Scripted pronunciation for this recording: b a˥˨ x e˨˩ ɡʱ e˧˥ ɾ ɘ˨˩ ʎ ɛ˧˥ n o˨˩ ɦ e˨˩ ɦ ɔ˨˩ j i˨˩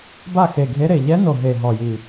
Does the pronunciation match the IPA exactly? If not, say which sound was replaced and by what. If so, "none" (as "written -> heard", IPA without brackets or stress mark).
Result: ɘ˨˩ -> e˨˩